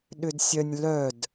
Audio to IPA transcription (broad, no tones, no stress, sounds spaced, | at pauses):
ɗ ʏ d sʲ œ nʲ l œ d